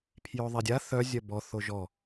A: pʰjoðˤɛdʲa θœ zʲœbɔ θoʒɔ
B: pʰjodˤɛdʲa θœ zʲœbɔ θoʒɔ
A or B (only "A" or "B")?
A